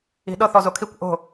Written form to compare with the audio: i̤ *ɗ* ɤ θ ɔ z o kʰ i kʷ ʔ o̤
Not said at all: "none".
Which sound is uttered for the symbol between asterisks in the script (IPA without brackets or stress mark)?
ɗ